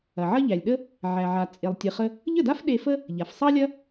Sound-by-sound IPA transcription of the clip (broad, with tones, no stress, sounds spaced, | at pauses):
ɐ˩ ʕ ɐ˥ ʎ æ˩ lʲ ɗ ə˥ | ʕ æ˩ ʕ a˩ t͡sʼ e˩ lˠ tʲ ɨ˩ χ ə˧ | ʎ ə˥˩ d a˥ f ɗ e˧ f ə˥ | ʎ a˩ f sˤ ɑ˥ lʲ ɐ˥